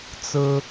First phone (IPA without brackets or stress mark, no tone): t͡s